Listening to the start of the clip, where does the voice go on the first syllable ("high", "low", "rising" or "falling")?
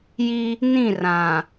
high